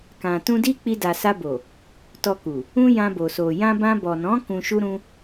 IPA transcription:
k ã˨ t ũ˧ d i˦ k͡p i˧ d a˨ s a˧ b o˨ | t ɔ˧ k u˨ | ũ˧ j ã˧ b o˨ s o˨ j ã˧ b ã˧ b ɔ˨ n ɔ̃˨˦ k ũ˧ ʃ u˦ ɾ ũ˦

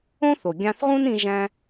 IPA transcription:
õ˥ θ o˩ ɡʲ ɑ̃˧ θ ʁ ũ˥ n ĩ˧ ʒ æ̃˧

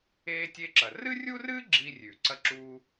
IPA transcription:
eː˧ tʲ e˧ ǁ ɐ˩ r ɨ˥ rʲ u˥ r ɨ˥ ɡ͡ǁ i˧ rʲ ʉ˩ ǀ ɐ˥ ǁ uː˥

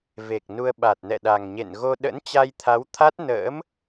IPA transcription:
v e˨˩ k̚ n u˧ ə̯ ɓ a˨˩ t̚ n ɛ̰˧˨ ɗ a˨˩ ŋ ɲ ḛ˧˨ n ɣ o˧ ɗ ə̰˧˥ n t͡ɕ a˧ j t̪ʰ a˨˦ w t̪ʰ a˦˥ t̚ n ə̰ː˧˥ m

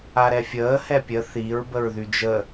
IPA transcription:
a ɾ ɛ fʲ əː h ɛ pʲ ə θ i ɹ b ə ɹ ð y d͡ʒ ə

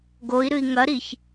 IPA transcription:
ɡ o i̯ ɾ ɨ i̯ ŋ ɐ ɾ i ç

